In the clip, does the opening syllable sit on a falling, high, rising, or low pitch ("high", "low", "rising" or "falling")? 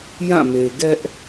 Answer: falling